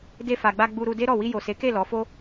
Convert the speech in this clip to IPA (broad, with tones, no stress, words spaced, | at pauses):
de˧fa˨ɡ͡ba˧ ɡ͡bu˧ɾu˧de˦ɾɔ˦˨ wi˧jo˨se˨˦ke˦˨ lɔ˨˦fo˦